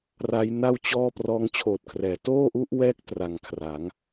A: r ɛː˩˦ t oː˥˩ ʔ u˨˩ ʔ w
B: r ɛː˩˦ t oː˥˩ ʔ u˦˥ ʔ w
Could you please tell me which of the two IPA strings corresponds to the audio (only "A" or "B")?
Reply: B